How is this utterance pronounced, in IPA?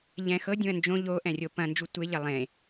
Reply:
ʎ ɛ̃ x ɤ dʲ ũ ɐ̯ n d͡ʒ õ ʎ o ʔ ɛ̃ rʲ o p ɐ̃ n d͡ʒ u tʷ e ʎ ɐ lˠ ẽ

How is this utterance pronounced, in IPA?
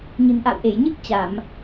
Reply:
ɲ ɨ̤˨˩ n ʔ a̰˧˨ w ʔ e˧˩ j ɲ ɨ˦˥ k̚ t͡ɕ a˧˩˨ m

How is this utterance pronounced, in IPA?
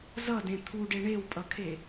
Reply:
z ʌ d ẽ t̪ʰ u ɖ e ɳ e w pʼ ʌ kʰ e

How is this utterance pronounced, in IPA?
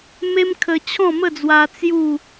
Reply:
m e˦ m kʰ ə˧ t͡ɕʰ ɔ̃˥˧ m ə˥˧ d͡z w a˧ t͡s j u˥˧

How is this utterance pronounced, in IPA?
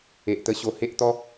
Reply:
e˨ ʔ t̪ ə˧ ɕ o˧ h e˦ ʔ t̪ ɔ˦

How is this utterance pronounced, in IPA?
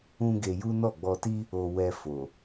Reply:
ũ˦ ɡ e˧ j u˦ n ɔ˦˨ ɡ͡b ɔ˧ t i˦ | o˧ w ɛ˧ f o˨

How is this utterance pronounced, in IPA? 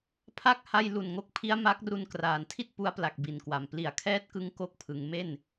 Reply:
pʰ a˥˩ k̚ h a˥˩ j l u˨˩ n ŋ o˦˥ k̚ pʰ i˦˥ a̯ m a˦˥ k̚ r u˧ n k r aː˩˦ n tʰ i˥˩ t̚ p u˦˥ a̯ p l a˨˩ k̚ b i˨˩ n k w a˨˩ m p l i˨˩ a̯ kʰ ɛː˦˥ t̚ k ɯ˦˥ ŋ k o˥˩ k̚ pʰ ɯ˩˦ ŋ m e˥˩ n

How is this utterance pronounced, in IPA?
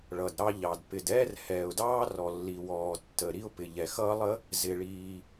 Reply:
ɭ ʌ˩ d ɾ ɑ˥ ʎ ɑ˩ d p ɪ˩ d ɛː˥ r h ɛː˩ ʊ̯ d ɑː˥ r ɔ˩ lː i˩ w ɔː˩ tː ə˩ ɾ i˥ ʊ̯ p ɪ˩ ʎ ɛ˩ x ʌː˥ lˠ ə˥ | z ɪ˩ ɭ iː˩

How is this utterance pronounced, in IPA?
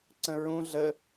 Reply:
ǀ ə̃ ɹ ũ ɮ ə

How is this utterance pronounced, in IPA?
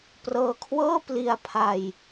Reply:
p r ɤː˧ kʰ w ɤː˥˩ p l i˧ a̯ pʰ a˧ j

